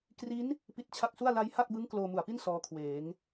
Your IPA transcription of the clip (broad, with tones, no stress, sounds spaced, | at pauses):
k r i˦˥ n | p i˦˥ t̚ t͡ɕʰ a˦˥ k̚ s u˥˩ a̯ l a˦˥ j h a˥˩ k̚ b ɯ˦˥ ŋ k l oː˧ m u˨˩ a̯ p i˥˩ n s ɔː˦˥ kʰ w eː˩˦ ŋ